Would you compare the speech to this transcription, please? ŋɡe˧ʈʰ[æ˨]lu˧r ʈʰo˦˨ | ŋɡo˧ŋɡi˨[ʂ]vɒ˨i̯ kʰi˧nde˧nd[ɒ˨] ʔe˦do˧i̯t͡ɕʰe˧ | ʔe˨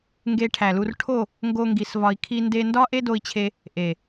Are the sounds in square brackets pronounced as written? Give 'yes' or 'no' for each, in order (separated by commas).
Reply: yes, no, no